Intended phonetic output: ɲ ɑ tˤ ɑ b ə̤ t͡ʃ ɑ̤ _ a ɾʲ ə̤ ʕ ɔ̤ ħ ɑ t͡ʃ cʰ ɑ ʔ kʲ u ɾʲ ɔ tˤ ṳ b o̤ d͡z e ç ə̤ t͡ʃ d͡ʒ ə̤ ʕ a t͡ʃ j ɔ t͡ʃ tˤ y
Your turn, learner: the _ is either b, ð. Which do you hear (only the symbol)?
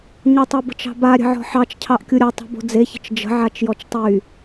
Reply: b